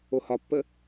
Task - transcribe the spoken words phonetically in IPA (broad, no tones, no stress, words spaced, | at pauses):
ohɒpːə